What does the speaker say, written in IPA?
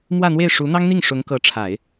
m w ä˥˧ n̪ w e˥˩ ɪ̯ ʂ u˧˥ n̪ ɑ˥ ŋ n̪ i˥˩ ŋ ʂ ʊ˧˥ ŋ k ɤ˧˥ ʈ͡ʂʰ a˨˩˦ ɪ̯

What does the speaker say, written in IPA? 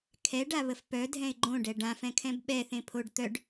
kʰ ɛ ɖ a β ə f p œ dʱ ɛ̃ ɪ̯ ɡ͡ǃ õ ɖ ɛ ɖ ã f ɛ̃ kʰ ɛ̃ b ɓ ɛ θ ẽ pʰ o ɖ t̪ œ ɖ

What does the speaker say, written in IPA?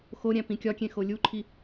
x o ɾʲ æ̃ p ĩ kʲ ɒ kʲ ẽ x o lʲ u ǃʰ i

